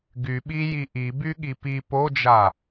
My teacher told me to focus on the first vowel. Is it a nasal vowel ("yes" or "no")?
no